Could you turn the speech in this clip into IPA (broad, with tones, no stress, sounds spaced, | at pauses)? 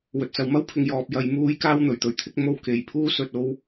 w ɵ˨ t̚ t͡s ɐ˨ w m ɐ˥ w pʰ ɪ˨ ŋ j ɔː˨ p̚ j ɐ˨˧ j m uː˥ j k aː˥ w n̪ ɵ˨˩ ɥ t̪ ɵ˧ ɥ t̪ʰ ɪ˥ k̚ m o˥ w k e˨ j pʰ uː˥ s ɵ˧ t̚ o˥ w